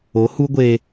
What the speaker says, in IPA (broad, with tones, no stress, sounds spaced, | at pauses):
o˨˦ h u˦ ɡʷ e˧